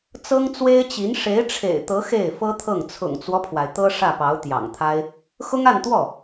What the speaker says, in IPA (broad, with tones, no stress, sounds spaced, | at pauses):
t͡s ɤ˥ ŋ t͡s w e˥ ɪ̯ t͡ɕ i˧˥ n ʂ e˧˥ ɪ̯ ʈ͡ʂʰ ḛ˨˩ ɪ̯ t̪ ɤ˧˥ x e˥˩ ɪ̯ f ɤ˥ t̪ʰ ɤ˥˩ ŋ t͡sʰ ʊ̰˨˩ ŋ t͡s w ɔ˦ pʰ w a˩ ɪ̯ t̪ ɤ˥ ʂ ä˥˩ p ɑ˧˥ ʊ̯ t̪ j ɑ̰˨˩ ŋ t̪ʰ a˥ ɪ̯ | x ʊ˥ ŋ a˥˧ n t̪ w ɔ˥˩